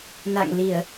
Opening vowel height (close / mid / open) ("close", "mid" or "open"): open